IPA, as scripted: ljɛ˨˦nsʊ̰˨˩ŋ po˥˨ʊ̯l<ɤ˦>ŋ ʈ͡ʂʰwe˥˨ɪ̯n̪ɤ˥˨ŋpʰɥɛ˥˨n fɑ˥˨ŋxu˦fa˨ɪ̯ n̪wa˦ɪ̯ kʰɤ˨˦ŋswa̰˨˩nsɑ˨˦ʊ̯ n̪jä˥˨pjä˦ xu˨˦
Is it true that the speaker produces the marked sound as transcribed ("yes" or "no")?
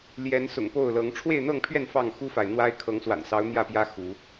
no